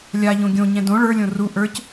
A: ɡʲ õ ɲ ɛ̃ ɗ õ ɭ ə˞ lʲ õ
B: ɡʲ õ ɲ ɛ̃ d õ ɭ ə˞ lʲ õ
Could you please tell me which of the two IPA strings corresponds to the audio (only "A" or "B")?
B